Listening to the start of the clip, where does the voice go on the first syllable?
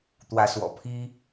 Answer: rising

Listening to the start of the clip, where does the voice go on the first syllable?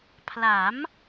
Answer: rising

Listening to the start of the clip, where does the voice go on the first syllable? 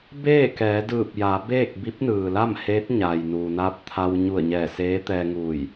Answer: falling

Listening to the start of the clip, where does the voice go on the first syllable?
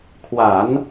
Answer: low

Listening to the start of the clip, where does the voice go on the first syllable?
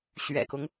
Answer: low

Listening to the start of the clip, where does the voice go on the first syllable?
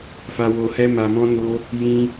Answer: low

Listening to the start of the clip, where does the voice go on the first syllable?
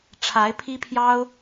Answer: rising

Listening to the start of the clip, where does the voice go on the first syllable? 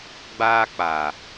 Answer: high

